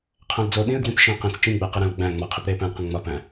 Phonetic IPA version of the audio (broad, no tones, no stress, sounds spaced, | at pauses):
qʰ æ̃ l d͡z o ɗ ĩ ə̯ ɡ w ĩ p ʃ ĩː q ĩ t͡s t͡ʃ ĩ ɡ͡b æ q i ɾ æ̃ l ɡ͡b æ̃ ŋ͡m ɒ qʰ i p ɾ eː p æ̃ l q ẽ ŋ͡m ɒ p æ̃